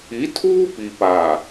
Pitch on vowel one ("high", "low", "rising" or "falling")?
rising